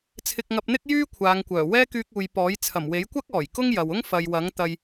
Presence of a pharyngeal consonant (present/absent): absent